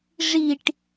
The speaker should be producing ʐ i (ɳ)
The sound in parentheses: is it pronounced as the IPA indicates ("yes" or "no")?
no